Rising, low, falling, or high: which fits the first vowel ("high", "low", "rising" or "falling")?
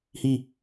falling